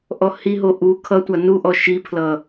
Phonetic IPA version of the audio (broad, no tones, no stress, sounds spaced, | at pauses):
ʔ ɔ h i ɦ o ʔ u kʰ ʌ tʷ a n u ʔ ɔ ʃ i pʰ l ʌ